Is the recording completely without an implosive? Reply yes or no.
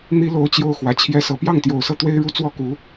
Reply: yes